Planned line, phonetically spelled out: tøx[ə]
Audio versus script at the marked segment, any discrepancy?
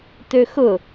yes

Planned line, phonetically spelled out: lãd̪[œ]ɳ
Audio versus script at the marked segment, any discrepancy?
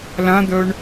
no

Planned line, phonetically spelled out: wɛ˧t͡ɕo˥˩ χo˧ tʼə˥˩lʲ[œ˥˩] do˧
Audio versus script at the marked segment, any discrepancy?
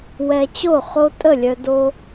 yes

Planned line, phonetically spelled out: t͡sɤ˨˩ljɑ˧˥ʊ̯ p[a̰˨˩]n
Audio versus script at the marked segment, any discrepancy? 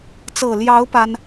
yes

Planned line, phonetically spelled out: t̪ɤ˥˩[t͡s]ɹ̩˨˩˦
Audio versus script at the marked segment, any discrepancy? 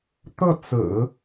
no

